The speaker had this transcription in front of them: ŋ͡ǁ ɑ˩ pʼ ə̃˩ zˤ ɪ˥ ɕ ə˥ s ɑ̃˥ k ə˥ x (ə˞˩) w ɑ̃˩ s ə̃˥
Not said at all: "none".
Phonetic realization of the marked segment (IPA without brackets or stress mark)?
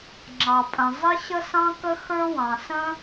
ə˞˥